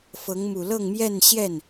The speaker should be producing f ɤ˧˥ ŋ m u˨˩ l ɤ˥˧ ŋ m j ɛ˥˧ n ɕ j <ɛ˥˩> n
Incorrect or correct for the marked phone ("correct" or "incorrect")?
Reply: correct